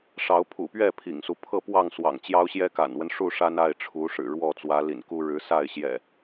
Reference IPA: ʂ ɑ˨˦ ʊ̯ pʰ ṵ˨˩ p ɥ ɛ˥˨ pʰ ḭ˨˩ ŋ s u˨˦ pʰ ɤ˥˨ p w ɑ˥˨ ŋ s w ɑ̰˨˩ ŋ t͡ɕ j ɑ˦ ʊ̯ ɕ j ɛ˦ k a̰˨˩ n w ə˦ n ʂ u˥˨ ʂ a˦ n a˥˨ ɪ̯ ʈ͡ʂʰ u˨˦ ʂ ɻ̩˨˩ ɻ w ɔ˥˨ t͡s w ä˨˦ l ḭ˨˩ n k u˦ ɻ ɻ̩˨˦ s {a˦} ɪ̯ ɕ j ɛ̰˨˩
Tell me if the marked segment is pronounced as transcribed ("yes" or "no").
no